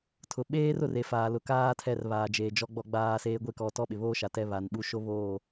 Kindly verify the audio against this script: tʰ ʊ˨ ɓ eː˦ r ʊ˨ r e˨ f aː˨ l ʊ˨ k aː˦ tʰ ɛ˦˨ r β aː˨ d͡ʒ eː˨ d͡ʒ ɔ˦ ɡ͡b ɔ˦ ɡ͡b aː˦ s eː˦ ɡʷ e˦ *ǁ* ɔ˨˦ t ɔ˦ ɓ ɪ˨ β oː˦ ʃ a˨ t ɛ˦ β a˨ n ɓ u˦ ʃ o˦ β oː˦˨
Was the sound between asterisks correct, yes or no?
no